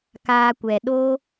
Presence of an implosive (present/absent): present